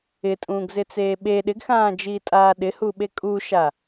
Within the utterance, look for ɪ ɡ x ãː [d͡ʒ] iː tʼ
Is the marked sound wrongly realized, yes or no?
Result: no